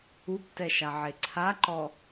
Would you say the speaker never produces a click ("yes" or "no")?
no